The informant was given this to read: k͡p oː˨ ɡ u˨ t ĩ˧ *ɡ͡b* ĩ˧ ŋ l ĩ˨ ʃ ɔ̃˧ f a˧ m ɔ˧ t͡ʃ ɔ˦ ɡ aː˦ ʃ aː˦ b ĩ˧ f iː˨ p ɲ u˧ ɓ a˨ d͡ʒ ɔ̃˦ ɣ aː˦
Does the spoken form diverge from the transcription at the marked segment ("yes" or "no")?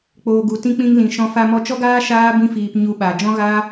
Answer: yes